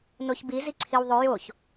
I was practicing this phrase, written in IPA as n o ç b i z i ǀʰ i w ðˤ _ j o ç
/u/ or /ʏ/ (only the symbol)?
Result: ʏ